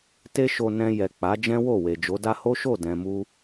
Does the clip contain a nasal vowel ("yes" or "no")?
yes